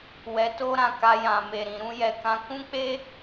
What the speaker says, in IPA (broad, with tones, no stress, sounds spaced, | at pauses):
w ɛ˧ t o˦ ɾ ã˧ k a˧ j ã˨ m e˨ ɾ ĩ˨ ɾ ũ˧ j ɛ˨ k ã˧ k ũ˦ k͡p e˦